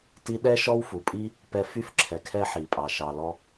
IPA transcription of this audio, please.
ti˥ ɗɛ˥ ʃɔ˥wfu˩pʼi˥ | pɛ˧fy˥fǁʰɛ˩ kʰɛ˥ħi˩pʼɑ˩ ʃɑ˩lɔ˧

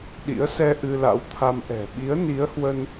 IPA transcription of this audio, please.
ɗḭ˧˥ə̯sɛ˧ ʔɨ˧la̰˧˥wt̪ʰa˧m ʔɛ̤˨˩ ɓi˨˦ə̯ ni˨˦ə̯hwə˧n

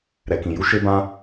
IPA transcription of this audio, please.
ɾɛ˨kĩ˨ ju˧ ʃe˧bã˧

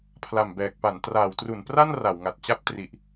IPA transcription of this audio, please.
pʰla˨˩mbɛː˨˩k̚pa˩˦n traː˩˦wtru˩˦n pra˥˩n ra˩˦wŋa˨˩t̚t͡ɕa˥˩p̚tri˨˩ʔ

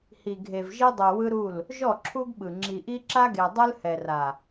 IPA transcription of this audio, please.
hi˨ɡʱe˨v ʒi˦dˤu˨ wɯ˦ɾu˦˨l | ʒɔ˦˨ǁʰu˦ɡɓɯ˨ ŋ͡ǁi˨ʔi˦ǁa˦ɡe˨ dˤɯ˦lhɛ˨ra˨

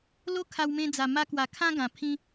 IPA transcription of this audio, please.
lo˦ kʰa˧wmẽ˧d͡za˨˩ ma˧kwa˨˩ kʰã˦ɡã˨˩ pʰĩ˧

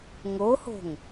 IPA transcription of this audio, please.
ŋoho̤ŋ

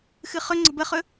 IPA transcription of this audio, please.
xɨχɵŋ͡ǀə̤ bəχɵ

